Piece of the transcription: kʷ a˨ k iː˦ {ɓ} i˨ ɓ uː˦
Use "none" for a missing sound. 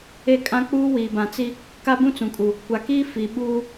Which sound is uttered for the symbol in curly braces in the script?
f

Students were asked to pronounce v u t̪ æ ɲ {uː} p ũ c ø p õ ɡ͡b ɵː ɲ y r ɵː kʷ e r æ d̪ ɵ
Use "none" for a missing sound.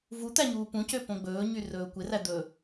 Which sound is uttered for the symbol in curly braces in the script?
uː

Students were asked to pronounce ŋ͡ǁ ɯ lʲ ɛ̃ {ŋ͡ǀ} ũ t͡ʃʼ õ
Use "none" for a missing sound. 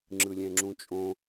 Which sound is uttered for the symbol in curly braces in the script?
ŋ͡ǁ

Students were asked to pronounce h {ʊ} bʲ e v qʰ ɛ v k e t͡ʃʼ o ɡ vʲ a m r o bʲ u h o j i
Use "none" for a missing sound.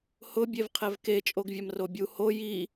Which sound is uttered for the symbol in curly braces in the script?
ʊ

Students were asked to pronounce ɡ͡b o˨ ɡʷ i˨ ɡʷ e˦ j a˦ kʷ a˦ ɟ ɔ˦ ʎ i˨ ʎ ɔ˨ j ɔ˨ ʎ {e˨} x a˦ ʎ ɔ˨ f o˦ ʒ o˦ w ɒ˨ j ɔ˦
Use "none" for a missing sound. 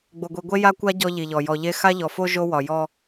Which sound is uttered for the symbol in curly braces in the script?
e˦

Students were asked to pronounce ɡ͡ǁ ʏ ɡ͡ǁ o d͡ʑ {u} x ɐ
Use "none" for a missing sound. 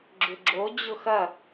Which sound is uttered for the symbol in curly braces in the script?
ʊ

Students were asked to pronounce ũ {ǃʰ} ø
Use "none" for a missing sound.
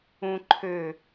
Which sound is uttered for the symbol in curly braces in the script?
ǃʰ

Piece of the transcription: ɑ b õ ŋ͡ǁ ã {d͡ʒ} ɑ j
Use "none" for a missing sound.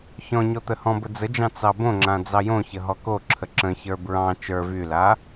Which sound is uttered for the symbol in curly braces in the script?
d͡z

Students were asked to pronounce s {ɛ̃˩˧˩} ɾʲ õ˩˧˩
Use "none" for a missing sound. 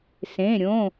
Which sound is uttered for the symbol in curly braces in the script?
ẽ˩˧˩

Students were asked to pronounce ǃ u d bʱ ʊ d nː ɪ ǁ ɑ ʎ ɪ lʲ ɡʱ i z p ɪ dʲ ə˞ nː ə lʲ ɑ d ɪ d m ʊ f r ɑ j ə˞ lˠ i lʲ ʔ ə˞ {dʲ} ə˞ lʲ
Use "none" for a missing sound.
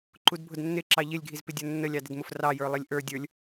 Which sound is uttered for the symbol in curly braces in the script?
dʲ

